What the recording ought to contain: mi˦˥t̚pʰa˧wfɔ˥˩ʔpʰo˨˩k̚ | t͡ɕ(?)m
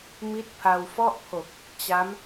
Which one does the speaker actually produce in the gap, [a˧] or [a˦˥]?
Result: a˦˥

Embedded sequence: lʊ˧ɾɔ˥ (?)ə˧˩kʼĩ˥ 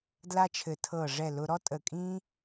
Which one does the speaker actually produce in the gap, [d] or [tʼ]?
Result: tʼ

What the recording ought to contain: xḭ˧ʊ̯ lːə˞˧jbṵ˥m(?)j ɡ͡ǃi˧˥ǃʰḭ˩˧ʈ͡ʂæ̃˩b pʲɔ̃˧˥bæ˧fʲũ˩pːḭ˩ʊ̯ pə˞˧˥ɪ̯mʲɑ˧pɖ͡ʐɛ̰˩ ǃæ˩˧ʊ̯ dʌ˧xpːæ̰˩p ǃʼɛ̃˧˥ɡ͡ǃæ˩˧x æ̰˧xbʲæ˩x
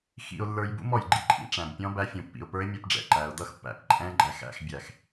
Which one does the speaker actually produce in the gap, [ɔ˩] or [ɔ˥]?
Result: ɔ˩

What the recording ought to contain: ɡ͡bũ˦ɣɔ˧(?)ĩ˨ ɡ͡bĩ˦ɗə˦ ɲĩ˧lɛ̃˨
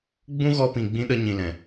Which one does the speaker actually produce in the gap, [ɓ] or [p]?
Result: p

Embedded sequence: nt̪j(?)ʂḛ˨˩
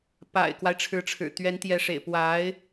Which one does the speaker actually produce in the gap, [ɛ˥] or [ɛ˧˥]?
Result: ɛ˧˥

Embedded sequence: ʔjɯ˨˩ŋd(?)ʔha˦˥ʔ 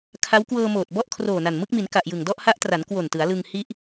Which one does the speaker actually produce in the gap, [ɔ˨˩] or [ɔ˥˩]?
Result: ɔ˥˩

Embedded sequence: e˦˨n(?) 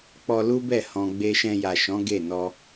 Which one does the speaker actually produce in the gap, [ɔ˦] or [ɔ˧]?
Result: ɔ˧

